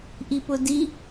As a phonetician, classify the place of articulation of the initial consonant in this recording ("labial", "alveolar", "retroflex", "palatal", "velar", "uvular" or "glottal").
glottal